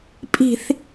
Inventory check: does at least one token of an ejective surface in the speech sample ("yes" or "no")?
yes